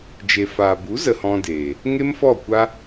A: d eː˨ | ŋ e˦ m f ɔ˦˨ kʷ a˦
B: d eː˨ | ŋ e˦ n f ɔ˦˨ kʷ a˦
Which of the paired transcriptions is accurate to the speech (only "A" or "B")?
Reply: A